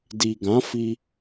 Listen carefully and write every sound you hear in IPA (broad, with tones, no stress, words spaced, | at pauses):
di˨ɡã˨˦fi˧